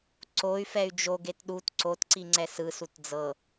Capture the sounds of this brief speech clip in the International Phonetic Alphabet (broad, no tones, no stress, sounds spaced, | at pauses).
ǀ o y̯ f ɛ y̯ d͡ʒ o ɡ e t ɗ u t ǀ o t ǀ i ŋ͡ǀ ɛ s ɯ s u t d͡z ɤ